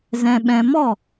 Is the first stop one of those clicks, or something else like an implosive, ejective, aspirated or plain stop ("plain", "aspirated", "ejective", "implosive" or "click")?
implosive